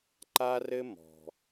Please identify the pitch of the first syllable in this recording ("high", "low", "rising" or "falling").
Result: high